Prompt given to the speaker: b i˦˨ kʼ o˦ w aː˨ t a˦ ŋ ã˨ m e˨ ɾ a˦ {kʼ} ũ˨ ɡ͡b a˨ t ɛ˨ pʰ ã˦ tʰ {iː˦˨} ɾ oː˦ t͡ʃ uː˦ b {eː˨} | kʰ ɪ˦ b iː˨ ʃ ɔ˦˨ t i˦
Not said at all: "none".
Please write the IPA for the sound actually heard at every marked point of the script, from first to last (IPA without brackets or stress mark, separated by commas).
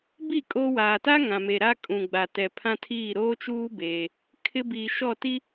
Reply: kʼ, iː˦˨, eː˦